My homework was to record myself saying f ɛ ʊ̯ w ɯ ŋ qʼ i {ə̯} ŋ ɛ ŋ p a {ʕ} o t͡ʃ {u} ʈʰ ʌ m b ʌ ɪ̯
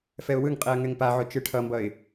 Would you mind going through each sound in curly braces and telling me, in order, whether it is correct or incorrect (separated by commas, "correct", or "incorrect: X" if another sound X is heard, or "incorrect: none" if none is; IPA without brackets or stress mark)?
correct, correct, incorrect: ɯ